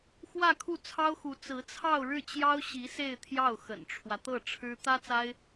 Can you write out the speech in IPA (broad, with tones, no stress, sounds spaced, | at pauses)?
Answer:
x w ä˥˧ kʰ u˥˩ t͡sʰ ɑ˥ ʊ̯ x u˧˥ t͡s ɹ̩˧˥ t͡sʰ ɑ˥˧ ʊ̯ ɻ ɻ̩˥˩ t͡ɕ j ɑ˥ ʊ̯ ɕ i˧˥ s e˥˧ ɪ̯ t̪ʰ j ɑ˥˩ ʊ̯ x ə̰˨˩ n ʈ͡ʂʰ w ä˦ t̪ ɤ˥˩ ʈ͡ʂʰ ɻ̩˥ t̪ ä˥ t͡s a˥ ɪ̯